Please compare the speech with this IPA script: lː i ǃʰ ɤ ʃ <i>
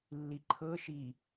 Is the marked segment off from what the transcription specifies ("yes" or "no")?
no